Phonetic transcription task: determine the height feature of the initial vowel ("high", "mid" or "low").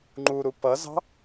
high